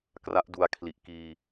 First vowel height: low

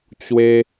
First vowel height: mid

